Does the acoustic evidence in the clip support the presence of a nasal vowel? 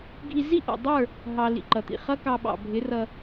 no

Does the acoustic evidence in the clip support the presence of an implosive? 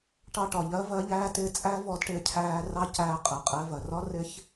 no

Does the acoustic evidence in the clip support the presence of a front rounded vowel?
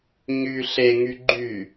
yes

